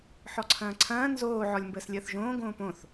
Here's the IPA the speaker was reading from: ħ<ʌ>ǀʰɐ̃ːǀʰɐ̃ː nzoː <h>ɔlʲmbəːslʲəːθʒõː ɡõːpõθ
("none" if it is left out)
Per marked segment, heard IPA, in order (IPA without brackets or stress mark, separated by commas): ɔ, ʕ